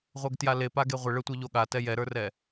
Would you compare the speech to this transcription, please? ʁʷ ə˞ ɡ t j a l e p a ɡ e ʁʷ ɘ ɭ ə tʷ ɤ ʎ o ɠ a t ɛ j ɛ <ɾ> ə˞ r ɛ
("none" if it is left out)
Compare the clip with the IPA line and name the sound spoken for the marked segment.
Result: ɾ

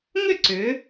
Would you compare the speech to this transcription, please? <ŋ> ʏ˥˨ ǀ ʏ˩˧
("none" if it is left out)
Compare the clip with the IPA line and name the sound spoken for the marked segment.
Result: ŋ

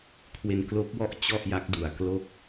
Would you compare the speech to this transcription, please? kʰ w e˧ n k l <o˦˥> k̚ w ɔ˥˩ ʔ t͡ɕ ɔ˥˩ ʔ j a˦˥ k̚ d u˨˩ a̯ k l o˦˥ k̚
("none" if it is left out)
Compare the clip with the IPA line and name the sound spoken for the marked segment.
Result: o˦˥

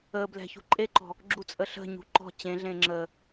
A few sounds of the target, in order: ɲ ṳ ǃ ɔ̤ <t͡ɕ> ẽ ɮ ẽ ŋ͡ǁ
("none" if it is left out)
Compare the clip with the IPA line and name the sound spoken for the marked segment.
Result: t͡ɕ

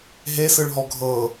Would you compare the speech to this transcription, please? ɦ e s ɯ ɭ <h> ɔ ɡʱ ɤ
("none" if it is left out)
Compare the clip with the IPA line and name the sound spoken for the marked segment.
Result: ɦ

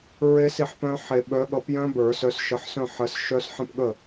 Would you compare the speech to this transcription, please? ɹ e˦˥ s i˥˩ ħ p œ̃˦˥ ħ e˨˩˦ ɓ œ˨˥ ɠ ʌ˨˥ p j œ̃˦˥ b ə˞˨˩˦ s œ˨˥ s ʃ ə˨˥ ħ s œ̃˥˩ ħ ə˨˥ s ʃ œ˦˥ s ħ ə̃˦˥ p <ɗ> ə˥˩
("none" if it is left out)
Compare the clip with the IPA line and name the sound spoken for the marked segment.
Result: ɠ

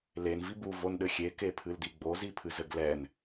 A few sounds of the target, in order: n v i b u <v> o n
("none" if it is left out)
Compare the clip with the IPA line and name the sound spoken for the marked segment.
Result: v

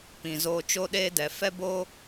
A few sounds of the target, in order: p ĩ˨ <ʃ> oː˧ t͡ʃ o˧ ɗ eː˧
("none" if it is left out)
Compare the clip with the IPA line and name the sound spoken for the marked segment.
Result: z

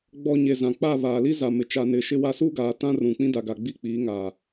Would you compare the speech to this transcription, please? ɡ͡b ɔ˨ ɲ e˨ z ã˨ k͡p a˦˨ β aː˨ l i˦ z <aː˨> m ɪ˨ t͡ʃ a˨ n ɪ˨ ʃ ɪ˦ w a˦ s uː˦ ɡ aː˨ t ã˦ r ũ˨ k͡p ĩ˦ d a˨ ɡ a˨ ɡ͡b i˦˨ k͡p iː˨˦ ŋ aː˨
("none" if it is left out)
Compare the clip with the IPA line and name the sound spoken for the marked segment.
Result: a˨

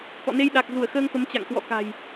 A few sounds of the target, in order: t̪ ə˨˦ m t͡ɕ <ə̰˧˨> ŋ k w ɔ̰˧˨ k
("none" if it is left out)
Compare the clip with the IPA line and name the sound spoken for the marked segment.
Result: a̰˧˨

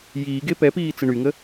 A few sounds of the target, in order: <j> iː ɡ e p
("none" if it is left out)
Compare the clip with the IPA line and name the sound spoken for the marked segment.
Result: j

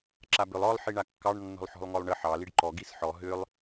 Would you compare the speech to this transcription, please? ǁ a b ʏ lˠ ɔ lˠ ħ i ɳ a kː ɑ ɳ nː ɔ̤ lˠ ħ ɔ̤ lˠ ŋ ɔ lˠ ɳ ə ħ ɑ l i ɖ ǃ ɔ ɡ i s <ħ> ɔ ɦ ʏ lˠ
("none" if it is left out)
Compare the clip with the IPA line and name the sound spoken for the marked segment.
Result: ħ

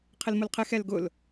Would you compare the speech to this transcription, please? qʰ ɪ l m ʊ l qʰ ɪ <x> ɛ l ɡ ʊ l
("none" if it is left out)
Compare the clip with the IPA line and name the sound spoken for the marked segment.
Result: x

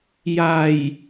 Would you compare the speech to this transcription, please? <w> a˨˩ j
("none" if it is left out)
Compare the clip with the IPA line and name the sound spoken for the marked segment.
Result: j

